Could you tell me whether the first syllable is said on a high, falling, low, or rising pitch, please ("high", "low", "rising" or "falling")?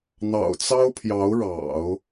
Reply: low